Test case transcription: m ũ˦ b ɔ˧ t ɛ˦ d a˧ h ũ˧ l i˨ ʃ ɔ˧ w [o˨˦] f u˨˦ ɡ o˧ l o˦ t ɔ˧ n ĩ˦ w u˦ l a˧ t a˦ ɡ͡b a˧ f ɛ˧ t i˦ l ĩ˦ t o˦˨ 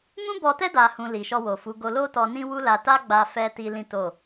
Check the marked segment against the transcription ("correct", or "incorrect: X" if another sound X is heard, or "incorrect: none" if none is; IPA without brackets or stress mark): incorrect: o˨